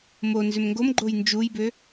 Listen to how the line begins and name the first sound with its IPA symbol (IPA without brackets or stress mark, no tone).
m